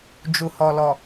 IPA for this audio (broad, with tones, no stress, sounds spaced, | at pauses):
d͡ʒ u˨ h ɔ˨ l ɔ˨